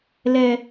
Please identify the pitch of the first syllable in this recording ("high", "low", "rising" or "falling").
high